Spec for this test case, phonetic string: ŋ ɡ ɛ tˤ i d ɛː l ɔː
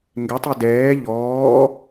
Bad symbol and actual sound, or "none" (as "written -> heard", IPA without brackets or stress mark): l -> ʎ